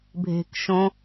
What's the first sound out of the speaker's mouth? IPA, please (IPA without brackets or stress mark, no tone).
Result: bʱ